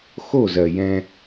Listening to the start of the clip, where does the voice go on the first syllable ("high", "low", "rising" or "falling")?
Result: falling